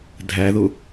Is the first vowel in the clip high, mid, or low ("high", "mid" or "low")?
low